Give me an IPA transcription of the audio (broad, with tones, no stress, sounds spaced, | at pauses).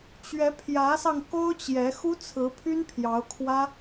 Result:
t͡ɕ ɥ ɛ˧˥ pʰ j ä˧˥ s ɑ˧ ŋ k o˥ ʊ̯ t͡ɕ j ɛ˧˥ x u˥ t͡sʰ ɹ̩˧˥ pʰ y˥ n pʰ j ɑ˧˥ ʊ̯ kʰ w ä˥